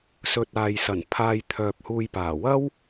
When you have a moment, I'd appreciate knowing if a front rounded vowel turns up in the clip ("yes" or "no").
yes